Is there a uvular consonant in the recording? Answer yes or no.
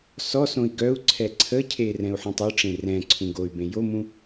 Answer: no